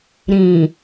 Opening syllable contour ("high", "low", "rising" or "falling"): low